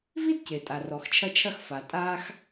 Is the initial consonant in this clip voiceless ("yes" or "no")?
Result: no